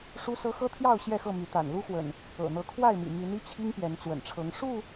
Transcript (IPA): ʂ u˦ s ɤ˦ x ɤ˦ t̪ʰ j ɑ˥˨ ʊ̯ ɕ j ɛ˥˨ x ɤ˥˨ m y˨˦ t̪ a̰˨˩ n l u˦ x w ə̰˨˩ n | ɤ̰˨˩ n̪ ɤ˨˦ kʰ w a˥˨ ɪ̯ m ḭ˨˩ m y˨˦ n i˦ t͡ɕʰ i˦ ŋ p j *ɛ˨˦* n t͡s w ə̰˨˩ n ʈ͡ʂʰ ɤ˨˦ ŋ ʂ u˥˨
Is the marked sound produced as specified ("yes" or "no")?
yes